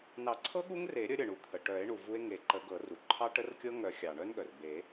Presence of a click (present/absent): present